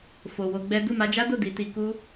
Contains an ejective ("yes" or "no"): no